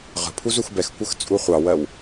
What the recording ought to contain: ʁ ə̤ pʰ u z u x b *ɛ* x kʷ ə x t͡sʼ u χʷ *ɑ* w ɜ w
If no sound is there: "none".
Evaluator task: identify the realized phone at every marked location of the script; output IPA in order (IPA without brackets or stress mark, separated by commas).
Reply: ɛ, ɑ